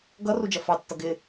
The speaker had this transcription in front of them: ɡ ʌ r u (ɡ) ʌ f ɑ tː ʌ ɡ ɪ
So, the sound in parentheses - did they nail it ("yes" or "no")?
no